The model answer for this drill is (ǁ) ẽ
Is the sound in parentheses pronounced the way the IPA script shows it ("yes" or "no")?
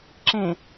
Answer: yes